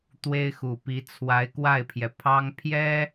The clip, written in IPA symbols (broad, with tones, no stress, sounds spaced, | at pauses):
t̪ w e˥ ɪ̯ x u˨˩ p i˧˥ t͡sʰ w a˧˥ ɪ̯ k w a˥˩ ɪ̯ pʰ j ɛ˩ pʰ ɑ˥ ŋ pʰ j ɛ˥